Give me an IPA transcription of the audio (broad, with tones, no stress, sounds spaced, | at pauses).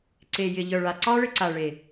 ǀ e˨ j ɪ˨ ʎ œ˨ ɭ a˨ ǀ ɑ˦ ɭ ɪ˧ ǀ a˨ ɭ e˨